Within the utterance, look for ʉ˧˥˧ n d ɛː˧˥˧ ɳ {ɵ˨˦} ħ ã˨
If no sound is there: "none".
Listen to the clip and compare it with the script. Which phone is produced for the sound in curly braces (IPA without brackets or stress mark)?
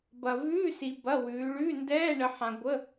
ə˨˦